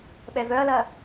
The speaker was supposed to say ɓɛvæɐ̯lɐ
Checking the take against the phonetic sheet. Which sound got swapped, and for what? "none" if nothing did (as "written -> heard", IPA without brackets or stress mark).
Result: æ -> œ